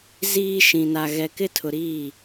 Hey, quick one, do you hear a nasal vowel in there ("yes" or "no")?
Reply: yes